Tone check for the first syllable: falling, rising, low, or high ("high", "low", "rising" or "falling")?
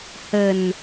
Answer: low